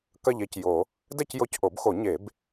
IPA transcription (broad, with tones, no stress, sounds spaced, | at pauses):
k ɐ˥˧ ʎ e˥˧ c j o˨˩˦ | d ɛ˥˧ c j o˧˥ c ʔ o˨˩˦ b x o˨˩˦ ɲ e˨˩˦ b